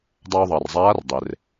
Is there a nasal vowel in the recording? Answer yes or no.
no